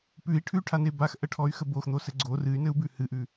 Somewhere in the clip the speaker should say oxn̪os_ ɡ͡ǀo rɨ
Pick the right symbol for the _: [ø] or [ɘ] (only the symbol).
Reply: ɘ